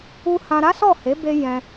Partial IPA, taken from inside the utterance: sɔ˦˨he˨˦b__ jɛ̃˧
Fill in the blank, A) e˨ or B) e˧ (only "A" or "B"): B